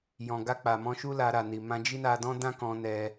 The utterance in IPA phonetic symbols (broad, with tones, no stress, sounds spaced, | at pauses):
j ɔ̃˨ ɡ a˧ k͡p a˨ m ɔ̃˧ ʃ u˦ l a˧ ɾ a˨ n i˨ m ã˧ d͡ʒ i˦ n a˧ d ɔ̃˦ d ã˦ k ɔ̃˧ n ɛ˦